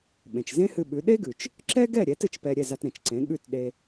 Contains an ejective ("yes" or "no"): no